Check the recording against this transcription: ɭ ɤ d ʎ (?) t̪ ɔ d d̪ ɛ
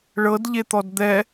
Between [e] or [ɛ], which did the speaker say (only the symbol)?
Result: e